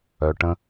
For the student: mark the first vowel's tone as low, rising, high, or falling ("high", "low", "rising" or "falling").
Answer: low